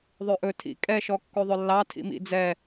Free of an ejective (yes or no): no